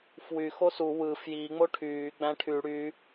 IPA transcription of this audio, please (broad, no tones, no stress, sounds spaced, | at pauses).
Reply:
f w y x o s u w ɯ f j i ŋ͡m o ʈʰ yː ɡ͡b æ̃ ʈʰ y ɽ y